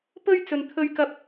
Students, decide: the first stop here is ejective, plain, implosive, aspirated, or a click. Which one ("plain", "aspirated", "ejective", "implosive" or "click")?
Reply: plain